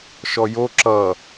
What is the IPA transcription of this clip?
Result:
ʃ ɔ j o ǁ ʌ

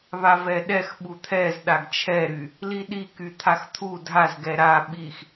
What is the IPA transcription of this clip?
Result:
β a v ɛ ɗ ɛ x ɓ u t̪ʰ ɛ z ɗ a ɡ t͡ʃʰ ɛ ɾ y | l i ɗ i k y t̪ʰ a x t̪ʰ u dʱ a z ɡ ɛ ɾ a ɓ i x

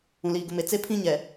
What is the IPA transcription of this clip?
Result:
ũ˨ l iː˨ ɡ ʊ˨ m e˨ t͡s e˦ pʰ ĩ˦ ɲ ɛ˨

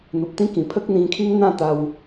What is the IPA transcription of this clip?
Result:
n̪ u˨ p̚ t̪ ĩ˦ k ĩ˨˩ pʰ ə˦ k̚ n̪ ĩ˧ kʰ i˦ ŋ n̪ ã˥˧ t̪ a˧ w

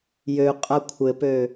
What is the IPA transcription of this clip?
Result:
j ø qʼ a kʷʰ ɘ p ø

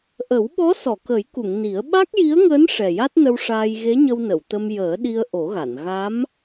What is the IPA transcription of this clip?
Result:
ʔ ə˨˩˦ w ɓ ɔ˧˥ s ɔ˨˩˨ k ə˨˩˦ j k u˨˩˨ ŋ n i˨˩˦ ə̯ ɓ a˦˥ k̚ j i˧˥ ə̯ ŋ əː˧˥ n ʂ ɛ˨˩ j a˦˥ t̚ n ə˧ w ʂ aː˧ j ɣ e˧˥ ɲ ə˧ w n ə˨˩˨ w t̪ ə˧ m j əː˨˩˦ ɗ i˧ ə̯ ʔ o˨˩˦ ɣ a˨˩˨ n ɣ a˧˥ m

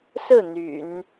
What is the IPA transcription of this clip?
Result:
s ɹ̩˥˩ n̪ y̰˨˩˦ n

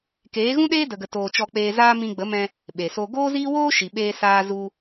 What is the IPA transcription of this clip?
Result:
k eː˨˦ ɣ ũ˦ ɗ eː˦ d ə˧ ɡ ə˧ t oː˧ t͡ʃ ɔ˧ k͡p eː˧ z aː˦ m ĩ˧ ɡ͡b ə˨˦ m ɛ̃˧ | ɓ e˨ s o˧ ɡ oː˦ z iː˦ w oː˦ ʃ i˨ ɓ eː˧ s aː˧ z u˧

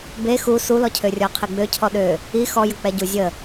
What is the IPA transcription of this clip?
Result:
b e x u s u l ɔ cʰ ø rʲ ɔ qʰ i ɡ͡b ø cʰ ɔ ɗ ø | i x ɔ j ə k͡p ɛ ɟ u zʲ ə

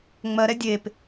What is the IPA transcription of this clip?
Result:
ŋ͡m ɜ ɾ ɛ dʲ e p

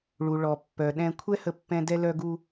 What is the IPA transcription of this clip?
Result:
ɭ u˩ ɭ ɔ˩ pː œ˩ ɗ ɛ̃˨ kʷʰ ɛ˦ h ə˨ pː ɛ̃˨ d ɛ˨ l œ˨ ɡ u˨

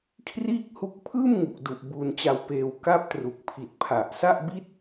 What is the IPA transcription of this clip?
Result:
kʰ r iː˥˩ k̚ h u˦˥ k̚ pʰ ɯː˥˩ m ŋ u˨˩ k̚ d u˨˩ ʔ b uː˧ n t͡ɕ a˧ w p eː˧ w k a˦˥ p̚ t r u˨˩ k̚ pʰ i˨˩ t̚ pʰ a˨˩ ʔ s a˥˩ ʔ b i˥˩ t̚

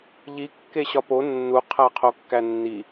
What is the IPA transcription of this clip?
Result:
ʎ i kː e ɕ ɒ p o nː u qʰ æ qʰ o kː æ nː i

